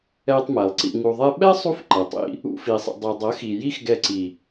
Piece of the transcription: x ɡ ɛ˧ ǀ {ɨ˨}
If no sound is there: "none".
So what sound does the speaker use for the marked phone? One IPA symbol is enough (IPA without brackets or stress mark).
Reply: i˨